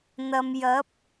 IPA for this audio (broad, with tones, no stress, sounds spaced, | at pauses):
n̪ ɐ˨ m j ɐ˨˥ p̚